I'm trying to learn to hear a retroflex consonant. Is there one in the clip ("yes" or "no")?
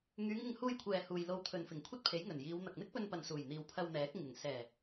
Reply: no